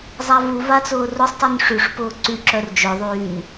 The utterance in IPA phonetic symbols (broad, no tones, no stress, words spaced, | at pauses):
zˤavu vat͡sʊːrʊsˤtˤyn ʂyʂpʊː ǀyǁœr d͡ʒœðˤyːn